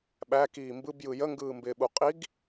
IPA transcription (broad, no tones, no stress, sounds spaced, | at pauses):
ɓ æ k iː m b ɯ b j ɯ j ə ŋ ɡ ɯː m b ɪː ɓ u qʼ i ɡ